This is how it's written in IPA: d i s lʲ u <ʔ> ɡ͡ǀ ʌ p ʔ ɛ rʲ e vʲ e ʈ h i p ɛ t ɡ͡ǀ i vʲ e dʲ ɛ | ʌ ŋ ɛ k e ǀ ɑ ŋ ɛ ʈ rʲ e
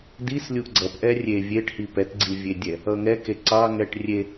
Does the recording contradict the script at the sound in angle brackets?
no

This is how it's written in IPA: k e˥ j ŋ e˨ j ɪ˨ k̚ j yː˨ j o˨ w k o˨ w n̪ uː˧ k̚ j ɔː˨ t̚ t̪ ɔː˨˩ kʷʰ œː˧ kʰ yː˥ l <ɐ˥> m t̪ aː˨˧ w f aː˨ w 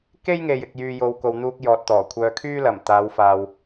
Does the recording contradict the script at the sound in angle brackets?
yes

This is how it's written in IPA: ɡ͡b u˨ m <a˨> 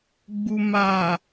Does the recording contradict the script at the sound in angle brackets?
no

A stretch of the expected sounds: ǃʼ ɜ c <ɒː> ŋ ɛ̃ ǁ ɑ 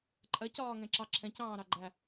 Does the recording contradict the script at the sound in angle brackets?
no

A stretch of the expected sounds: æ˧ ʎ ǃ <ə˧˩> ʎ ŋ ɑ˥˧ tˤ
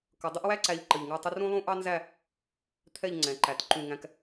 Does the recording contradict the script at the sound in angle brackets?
no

